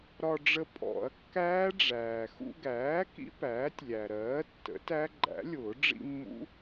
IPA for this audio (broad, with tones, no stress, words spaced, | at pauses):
ɾɒ˧ɖ͡ʐə˧ pʼɔ̰˨˩˦ɐ̯kːæː˦˥ɖ͡ʐæː˩ xṵ˧ɡæː˩˥ kḭ˦˥pæː˩˥tʲlʲæ˩ɾɜː˩˥ tːə̰˩˥tæ˦˥ ɡ͡ǃæ̰˩˥lʲʊː˨˩˦ ɖ͡ʐḭ˧ mːṵ˦˥